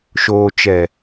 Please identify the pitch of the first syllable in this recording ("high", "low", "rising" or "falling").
low